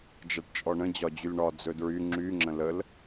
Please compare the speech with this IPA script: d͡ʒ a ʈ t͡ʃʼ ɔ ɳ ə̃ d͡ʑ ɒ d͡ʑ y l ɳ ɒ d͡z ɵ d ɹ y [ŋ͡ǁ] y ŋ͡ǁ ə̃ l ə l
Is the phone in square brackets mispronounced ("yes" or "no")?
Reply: no